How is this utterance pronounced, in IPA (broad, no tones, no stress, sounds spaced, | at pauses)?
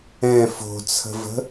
ɛ̃ f o̤ t͡sʰ ə̤ v ə̤